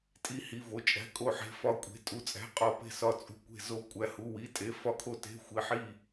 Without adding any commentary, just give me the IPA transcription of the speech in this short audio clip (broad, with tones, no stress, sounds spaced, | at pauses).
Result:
tʼ i˧˩ h i˩˧˩ v o˩˧˩ t͡ʃʼ æ̤˩˧˩ kʼ o˧˩ ħ e̤˩˧˩ f ɒ˧˩ kʷʼ e̤˩˧˩ tʼ u˩˧˩ t͡sʼ æ̤˩˧˩ qʼ ɒ˩˧˩ p e̤˧˩ s ɒ˧˩ t͡sʼ ṳ˧˩ kʷ e̤˧˩ z o˧˩ kʷʼ æ˩˧˩ h u˩˧˩ w i˩˧˩ tʼ e˩˧˩ f ɒ˧˩ kʰ o˧˩ t e̤˩˧˩ xʷ i˩˧˩ ħ i˧˩